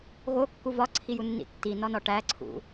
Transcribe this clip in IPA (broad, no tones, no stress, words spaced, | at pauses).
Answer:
ɣokːu vɒǀʰijunːḭ tːinɒnɒ ʈæǀʰṵ